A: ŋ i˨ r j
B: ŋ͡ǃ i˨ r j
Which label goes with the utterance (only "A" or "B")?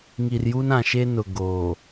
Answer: A